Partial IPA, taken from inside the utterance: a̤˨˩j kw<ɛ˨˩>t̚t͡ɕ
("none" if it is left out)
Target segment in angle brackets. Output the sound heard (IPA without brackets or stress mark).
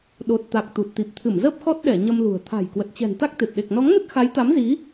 ə˨˩